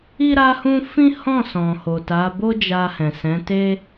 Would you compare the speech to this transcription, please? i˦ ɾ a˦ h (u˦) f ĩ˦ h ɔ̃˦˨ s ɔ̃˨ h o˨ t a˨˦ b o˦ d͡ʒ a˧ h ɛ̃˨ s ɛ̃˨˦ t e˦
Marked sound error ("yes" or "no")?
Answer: yes